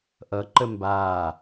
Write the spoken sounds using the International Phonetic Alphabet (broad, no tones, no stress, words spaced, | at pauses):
ʔʌǃə mbaː